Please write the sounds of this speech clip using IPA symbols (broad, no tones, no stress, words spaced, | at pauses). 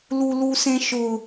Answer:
lulusẽʃʊ